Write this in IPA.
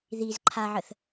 ð i z ǃʰ a ʕ ə θ

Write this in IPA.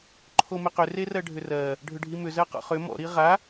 ǃʰ o m ɪ q ʏ r e r ɜ ɖʱ ʏ r ɜ | ɖʱ ʏ ɖʱ i m ʏ z ɜ q ɔ̰ χ ʏ m ɔ̰ ɾ i ʁ a

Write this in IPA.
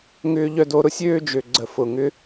ŋ ʏː˧ ʎ œ˧ d o˨˦ ɾ ʊ˧ sʲ øː˦ d͡ʒ ø˨ ɡ͡ǀ ə˨ f ʊ˨ ŋ ʏ˦

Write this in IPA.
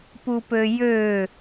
p u p ø j ø

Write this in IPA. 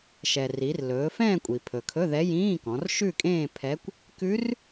ʃ ɛ˩ r i˩˧ r l ɵː˩˧ f ɛ̃ː˥˧ kʷʼ i˩ pʰ ɵ˩ kʰ ɵ˧˥˧ ð ɛ˧˥ j ĩː˧˥˧ k ɔ̃˩˧ r ʃ ʉ˥˧ kʼ ẽː˥˧ pʰ ɛ˧˥ kʷ | k ʉ˧˥ r

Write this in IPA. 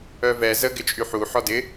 œ v ɛ z ə ɡ ɪ t͡ʃʼ y ħ u ħ ɔ d ɪ

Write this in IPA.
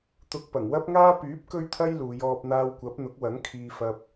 t̪ ʊ˧ k̚ p ɐ˨˩ ŋ w ɐ˥ p̚ ŋ aː˥ p yː˨˥ p̚ k ɵ˥ ɥ t̪ʰ ɐ˥ j l uː˨˧ j ɔː˧ p̚ n̪ aː˧ w kʷ ɐ˨˥ p̚ n̪ ʊ˨˥ k̚ w ɐ˨˥ ŋ kʰ iː˧ f ɐ˧ p̚

